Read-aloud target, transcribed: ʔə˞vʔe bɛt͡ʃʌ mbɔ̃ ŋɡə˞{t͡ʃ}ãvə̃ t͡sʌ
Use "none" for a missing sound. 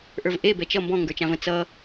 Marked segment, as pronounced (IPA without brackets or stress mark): t͡ʃ